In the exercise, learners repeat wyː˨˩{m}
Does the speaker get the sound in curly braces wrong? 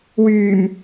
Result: no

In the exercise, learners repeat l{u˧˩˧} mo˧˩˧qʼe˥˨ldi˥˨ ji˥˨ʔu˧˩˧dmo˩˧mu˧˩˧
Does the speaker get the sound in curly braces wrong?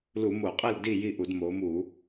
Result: no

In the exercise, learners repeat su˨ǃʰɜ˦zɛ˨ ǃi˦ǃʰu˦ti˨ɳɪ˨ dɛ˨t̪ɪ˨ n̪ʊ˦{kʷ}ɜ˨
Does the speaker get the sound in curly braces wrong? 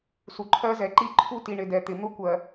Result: no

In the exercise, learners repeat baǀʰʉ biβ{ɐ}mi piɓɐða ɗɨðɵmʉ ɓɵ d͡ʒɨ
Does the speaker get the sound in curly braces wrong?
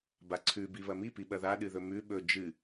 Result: no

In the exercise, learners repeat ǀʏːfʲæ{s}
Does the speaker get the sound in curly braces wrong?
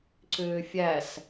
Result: no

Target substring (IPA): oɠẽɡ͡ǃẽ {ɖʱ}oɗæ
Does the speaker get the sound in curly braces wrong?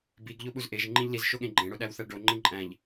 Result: yes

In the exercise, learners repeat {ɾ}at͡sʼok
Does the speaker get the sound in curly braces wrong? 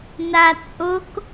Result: yes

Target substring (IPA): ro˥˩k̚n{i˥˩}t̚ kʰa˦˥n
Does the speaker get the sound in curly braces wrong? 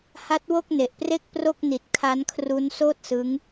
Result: yes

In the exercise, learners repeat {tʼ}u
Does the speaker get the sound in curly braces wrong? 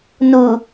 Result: yes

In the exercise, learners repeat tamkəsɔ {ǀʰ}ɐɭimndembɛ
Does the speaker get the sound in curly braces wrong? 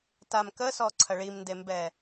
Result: no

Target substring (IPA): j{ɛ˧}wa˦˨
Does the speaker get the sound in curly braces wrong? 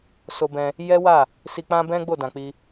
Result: yes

